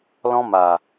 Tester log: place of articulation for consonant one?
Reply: alveolar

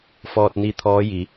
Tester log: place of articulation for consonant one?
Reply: labial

